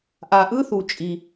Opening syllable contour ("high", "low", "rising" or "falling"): low